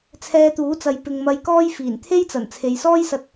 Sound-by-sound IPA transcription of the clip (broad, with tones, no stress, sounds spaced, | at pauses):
t͡sʰ ɛː˧ t̪ uː˨˥ t͡s ɐ˨ j p ɪ˨ ŋ m ɐ˨ j k ɔː˧ j f iː˨˩ n t̪ʰ e˥ j t͡s ɐ˨˩ n t͡sʰ e˨ j s ɔː˥ j s ɐ˧ t̚